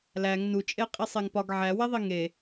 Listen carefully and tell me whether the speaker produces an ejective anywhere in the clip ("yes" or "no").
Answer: yes